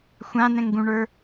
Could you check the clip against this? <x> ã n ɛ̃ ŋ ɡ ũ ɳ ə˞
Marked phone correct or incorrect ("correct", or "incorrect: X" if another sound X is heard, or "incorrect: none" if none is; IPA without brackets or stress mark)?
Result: incorrect: xʷ